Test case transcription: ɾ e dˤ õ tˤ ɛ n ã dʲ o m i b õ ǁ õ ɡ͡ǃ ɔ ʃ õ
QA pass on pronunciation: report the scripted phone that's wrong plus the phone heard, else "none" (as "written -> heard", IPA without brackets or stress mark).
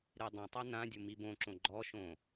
none